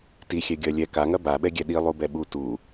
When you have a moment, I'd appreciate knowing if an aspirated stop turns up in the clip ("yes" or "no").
no